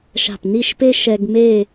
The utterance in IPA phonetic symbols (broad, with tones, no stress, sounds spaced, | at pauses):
ʃ a̤˧˩ p n i˥˧ ʃ p e˥ ʃ ɛ˧ ɡ m e˥˧